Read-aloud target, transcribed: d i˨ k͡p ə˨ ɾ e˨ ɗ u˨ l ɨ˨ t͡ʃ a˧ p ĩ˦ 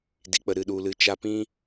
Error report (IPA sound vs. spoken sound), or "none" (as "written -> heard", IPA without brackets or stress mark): e˨ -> ɨ˨